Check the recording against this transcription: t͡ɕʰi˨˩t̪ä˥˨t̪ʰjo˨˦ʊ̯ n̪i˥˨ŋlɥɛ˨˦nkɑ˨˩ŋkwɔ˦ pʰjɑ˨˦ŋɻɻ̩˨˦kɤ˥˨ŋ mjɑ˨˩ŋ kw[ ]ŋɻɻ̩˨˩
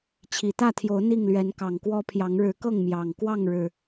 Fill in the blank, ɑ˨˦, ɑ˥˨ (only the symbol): ɑ˥˨